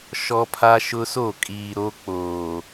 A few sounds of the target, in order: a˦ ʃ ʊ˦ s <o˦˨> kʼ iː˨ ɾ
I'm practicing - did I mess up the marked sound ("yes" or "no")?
no